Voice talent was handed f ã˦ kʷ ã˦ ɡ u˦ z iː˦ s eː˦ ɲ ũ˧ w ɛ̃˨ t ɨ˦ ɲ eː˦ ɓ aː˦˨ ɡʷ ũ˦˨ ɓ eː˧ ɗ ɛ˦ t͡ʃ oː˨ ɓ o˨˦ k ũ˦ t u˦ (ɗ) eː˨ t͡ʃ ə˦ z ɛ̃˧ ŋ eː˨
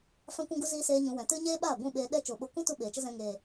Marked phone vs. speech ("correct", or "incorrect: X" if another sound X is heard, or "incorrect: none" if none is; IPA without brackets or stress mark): incorrect: ɓ